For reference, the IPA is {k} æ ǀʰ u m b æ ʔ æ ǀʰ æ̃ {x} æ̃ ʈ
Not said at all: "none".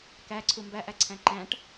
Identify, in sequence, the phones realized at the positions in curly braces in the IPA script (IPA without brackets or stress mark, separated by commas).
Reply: k, ǃ